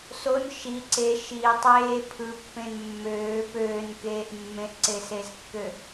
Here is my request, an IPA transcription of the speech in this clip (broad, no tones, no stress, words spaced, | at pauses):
son ʃi ǀe ʃi tˤeː pʰɯpːẽn mːøː pøːnkeːʔ mːẽʔǀesezkːø